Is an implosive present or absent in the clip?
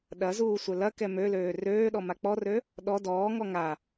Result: present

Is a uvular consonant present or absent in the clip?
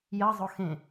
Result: absent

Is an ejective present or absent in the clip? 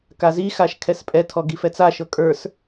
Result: present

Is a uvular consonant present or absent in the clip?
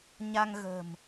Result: absent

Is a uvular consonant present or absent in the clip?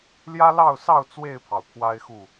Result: absent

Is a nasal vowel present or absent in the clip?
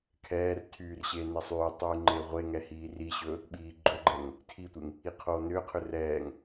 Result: absent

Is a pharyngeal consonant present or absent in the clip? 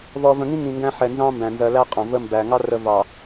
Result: present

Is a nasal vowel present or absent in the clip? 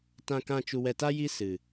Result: present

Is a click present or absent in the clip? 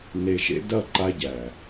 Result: present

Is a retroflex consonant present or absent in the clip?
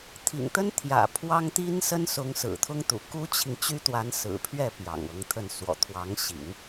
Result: absent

